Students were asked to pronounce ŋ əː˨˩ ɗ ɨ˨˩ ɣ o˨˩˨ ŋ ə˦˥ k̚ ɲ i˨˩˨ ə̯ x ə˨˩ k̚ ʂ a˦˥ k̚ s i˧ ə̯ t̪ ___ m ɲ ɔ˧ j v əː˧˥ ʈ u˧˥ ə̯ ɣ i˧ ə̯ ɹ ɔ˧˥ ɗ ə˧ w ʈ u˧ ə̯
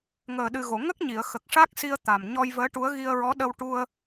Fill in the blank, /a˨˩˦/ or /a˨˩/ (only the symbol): a˨˩